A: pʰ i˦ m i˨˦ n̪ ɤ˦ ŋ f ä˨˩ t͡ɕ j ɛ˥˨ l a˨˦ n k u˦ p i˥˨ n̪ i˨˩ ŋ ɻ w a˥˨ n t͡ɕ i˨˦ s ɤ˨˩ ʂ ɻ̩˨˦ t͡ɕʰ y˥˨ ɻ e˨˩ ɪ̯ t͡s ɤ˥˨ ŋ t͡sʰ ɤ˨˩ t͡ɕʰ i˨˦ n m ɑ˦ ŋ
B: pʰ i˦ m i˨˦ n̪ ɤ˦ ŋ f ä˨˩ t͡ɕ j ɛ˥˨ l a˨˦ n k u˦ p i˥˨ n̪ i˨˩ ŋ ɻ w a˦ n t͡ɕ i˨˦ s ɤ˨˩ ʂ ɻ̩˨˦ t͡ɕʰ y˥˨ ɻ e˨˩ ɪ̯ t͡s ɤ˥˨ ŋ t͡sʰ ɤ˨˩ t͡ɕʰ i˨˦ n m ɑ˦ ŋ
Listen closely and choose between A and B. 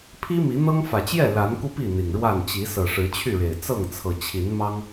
A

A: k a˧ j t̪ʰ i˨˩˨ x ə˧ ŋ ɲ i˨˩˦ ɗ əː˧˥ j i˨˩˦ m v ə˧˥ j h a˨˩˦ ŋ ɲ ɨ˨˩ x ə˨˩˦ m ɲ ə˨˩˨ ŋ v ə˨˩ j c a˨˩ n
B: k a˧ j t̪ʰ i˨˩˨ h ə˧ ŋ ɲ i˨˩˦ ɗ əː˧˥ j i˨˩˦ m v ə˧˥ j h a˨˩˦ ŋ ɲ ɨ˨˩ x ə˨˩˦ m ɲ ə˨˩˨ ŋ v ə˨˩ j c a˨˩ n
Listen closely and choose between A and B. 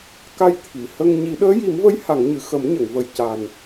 B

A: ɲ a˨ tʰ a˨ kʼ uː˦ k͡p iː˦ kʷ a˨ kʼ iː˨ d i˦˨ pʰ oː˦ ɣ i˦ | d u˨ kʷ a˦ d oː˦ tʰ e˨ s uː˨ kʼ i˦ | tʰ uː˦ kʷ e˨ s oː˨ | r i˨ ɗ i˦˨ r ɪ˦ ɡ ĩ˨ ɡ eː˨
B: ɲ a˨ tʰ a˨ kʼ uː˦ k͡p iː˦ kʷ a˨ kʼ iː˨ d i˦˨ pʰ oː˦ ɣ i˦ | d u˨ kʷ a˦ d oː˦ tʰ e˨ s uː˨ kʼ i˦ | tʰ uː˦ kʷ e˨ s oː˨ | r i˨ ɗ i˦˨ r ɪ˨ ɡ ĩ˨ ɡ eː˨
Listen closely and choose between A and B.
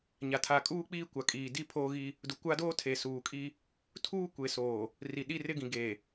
A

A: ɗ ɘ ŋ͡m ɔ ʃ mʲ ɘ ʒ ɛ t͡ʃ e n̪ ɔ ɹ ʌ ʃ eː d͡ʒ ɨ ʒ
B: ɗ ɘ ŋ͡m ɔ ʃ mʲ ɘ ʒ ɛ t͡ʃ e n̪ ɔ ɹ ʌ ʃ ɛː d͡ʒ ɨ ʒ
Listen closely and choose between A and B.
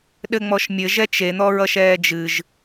B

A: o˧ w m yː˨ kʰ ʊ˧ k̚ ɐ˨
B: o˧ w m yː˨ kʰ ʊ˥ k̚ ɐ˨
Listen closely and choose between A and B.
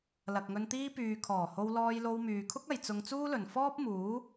B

